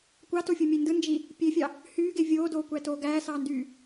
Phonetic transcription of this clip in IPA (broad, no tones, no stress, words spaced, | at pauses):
kʷɑtofʲumʲe ndɯnd͡ʒi | pʲefʲɑ | hyːɡe vʲoːdoːkʷætoː ɡæːsɑːndyː